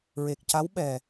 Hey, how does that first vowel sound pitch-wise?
low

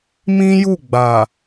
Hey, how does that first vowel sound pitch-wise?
high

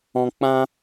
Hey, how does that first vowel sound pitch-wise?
low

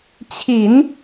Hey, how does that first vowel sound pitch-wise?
low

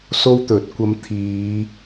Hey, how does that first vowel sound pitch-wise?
high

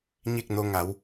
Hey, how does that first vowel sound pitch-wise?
falling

